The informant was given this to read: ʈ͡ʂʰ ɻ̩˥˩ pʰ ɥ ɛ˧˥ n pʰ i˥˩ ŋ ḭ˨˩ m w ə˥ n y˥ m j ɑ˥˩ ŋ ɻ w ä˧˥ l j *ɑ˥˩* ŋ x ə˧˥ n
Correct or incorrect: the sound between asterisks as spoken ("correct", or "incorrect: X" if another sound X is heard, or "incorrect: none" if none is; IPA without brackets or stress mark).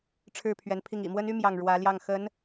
correct